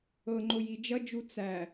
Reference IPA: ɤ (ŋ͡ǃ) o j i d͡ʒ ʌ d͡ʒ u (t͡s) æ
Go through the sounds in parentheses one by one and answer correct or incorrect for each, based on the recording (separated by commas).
correct, correct